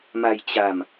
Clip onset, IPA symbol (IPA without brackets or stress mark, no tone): m